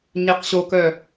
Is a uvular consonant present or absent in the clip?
present